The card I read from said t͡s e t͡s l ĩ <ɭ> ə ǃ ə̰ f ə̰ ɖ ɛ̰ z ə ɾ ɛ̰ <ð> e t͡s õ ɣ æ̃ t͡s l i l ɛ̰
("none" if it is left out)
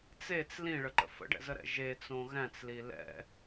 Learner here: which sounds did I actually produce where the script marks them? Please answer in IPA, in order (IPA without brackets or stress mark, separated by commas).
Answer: ɭ, ʒ